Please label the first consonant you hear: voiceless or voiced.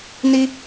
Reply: voiced